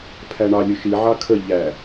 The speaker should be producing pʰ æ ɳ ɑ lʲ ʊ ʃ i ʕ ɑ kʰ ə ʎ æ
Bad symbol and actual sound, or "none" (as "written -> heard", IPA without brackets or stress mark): none